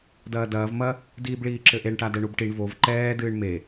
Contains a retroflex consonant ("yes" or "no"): yes